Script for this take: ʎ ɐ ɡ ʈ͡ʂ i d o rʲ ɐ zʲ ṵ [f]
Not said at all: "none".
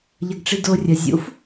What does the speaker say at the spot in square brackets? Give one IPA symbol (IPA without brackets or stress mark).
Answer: f